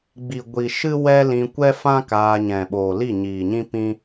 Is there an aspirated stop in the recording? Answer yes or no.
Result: no